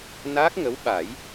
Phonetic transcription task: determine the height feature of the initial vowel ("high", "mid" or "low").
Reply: low